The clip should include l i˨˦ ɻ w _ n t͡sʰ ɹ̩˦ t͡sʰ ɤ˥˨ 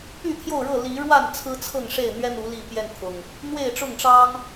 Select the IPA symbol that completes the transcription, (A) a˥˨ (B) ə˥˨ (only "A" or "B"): A